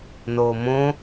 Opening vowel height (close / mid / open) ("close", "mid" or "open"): mid